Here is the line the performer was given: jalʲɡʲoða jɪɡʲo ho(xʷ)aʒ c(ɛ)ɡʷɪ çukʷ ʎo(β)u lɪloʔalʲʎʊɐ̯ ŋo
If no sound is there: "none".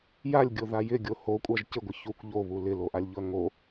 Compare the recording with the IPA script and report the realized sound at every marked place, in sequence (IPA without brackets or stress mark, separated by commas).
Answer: kʷʼ, ɪ, β